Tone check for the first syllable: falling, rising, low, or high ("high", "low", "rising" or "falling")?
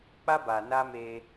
high